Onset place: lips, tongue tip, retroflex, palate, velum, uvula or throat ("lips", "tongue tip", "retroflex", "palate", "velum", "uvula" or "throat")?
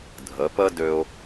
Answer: tongue tip